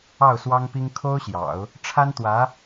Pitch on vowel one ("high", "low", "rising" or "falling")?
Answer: falling